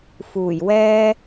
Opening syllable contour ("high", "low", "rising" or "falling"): low